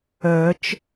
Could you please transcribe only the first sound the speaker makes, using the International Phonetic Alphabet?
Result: œ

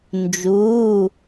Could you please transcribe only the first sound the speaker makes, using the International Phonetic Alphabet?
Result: n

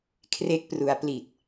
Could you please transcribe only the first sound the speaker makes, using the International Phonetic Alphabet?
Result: kʰ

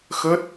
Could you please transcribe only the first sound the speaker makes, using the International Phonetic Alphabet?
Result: x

